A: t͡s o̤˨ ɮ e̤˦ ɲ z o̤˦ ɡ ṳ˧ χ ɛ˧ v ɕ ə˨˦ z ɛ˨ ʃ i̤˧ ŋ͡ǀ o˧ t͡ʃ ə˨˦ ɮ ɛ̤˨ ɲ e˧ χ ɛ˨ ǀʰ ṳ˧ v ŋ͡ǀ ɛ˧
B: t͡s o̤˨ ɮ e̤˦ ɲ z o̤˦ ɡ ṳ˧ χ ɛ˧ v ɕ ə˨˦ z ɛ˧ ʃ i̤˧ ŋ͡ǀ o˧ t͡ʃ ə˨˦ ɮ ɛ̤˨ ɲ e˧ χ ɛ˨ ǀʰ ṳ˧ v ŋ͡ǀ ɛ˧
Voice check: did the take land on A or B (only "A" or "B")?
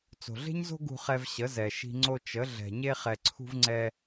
A